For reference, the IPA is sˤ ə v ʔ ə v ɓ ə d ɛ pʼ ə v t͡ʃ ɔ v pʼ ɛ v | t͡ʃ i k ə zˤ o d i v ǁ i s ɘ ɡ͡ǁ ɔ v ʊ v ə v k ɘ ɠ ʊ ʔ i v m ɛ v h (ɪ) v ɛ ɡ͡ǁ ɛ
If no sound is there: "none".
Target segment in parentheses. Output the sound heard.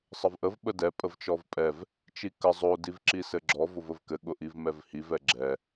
i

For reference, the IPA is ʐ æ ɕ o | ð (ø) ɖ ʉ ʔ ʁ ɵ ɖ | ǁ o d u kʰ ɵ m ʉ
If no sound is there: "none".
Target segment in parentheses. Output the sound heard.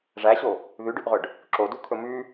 ʉ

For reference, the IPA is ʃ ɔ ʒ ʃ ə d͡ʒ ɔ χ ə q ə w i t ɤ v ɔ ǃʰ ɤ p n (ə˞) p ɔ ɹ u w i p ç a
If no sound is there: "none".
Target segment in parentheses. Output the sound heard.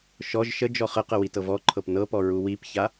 ɤ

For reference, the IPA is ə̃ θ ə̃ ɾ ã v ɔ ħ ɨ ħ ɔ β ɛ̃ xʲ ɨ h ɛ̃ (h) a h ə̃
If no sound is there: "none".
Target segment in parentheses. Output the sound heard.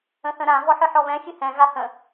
ɣ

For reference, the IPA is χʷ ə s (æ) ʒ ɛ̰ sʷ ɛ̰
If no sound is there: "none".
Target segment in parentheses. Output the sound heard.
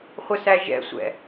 æ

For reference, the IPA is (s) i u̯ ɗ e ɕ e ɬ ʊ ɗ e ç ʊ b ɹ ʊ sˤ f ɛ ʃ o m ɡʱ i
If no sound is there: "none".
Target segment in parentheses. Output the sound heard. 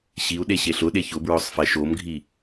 ɕ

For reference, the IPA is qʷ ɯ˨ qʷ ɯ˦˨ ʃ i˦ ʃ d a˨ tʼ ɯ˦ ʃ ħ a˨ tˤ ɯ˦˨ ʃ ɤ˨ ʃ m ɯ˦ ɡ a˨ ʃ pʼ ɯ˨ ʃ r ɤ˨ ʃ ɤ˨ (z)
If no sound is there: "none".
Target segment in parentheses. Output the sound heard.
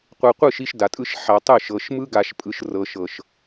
ʃ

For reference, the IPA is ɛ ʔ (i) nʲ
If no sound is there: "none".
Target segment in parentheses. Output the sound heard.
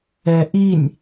i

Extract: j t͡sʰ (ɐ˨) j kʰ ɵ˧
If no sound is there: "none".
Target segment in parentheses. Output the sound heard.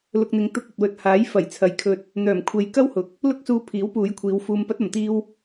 ɐ˨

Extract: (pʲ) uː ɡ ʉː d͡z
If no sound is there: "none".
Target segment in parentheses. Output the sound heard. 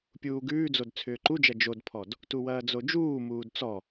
pʲ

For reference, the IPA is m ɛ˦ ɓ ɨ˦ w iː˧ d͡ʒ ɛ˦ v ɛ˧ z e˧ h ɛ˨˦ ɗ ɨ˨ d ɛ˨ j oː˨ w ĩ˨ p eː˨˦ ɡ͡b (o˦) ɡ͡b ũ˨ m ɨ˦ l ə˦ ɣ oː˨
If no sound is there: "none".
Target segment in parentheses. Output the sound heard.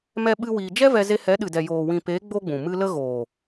o˦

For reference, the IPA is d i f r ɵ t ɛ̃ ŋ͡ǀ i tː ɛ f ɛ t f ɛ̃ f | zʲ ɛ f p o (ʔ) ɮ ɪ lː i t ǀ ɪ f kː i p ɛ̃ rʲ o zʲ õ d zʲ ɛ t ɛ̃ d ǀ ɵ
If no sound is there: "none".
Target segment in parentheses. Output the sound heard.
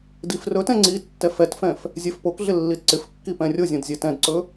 k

